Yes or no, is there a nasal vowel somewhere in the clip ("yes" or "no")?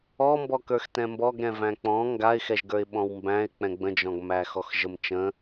yes